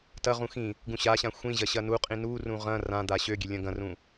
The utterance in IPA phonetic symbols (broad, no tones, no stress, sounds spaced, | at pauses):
t ɐ ʁ ũ x ĩ | ɡ ũ ɕ a ɕ ã xʷ ĩ ʑ ɐ ɕ ɐ n u qʼ ĩ n u r ũ ʁ ɐ̃ r ã d̪ a ɕ ø ɡʲ ø lʲ ɐ̃ ɡ ɐ̃ r ũ